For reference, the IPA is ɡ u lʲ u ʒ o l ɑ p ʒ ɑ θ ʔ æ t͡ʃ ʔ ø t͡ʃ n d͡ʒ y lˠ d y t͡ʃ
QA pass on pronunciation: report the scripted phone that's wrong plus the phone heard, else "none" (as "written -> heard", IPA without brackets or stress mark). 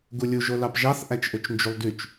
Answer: none